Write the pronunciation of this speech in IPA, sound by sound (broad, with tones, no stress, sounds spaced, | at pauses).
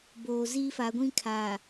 b oː˨ z iː˦ f a˨˦ ɡʷ ĩ˦ kʰ a˨